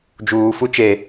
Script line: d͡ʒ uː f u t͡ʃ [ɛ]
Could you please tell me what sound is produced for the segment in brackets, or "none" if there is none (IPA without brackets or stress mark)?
e